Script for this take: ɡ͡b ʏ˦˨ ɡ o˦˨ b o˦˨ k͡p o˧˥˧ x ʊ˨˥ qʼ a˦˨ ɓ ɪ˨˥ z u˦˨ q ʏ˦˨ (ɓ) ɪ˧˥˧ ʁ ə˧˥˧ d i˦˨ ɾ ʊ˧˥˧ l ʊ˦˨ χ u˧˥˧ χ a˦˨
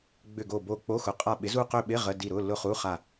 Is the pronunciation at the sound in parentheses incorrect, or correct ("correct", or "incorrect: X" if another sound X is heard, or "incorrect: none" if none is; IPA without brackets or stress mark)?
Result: correct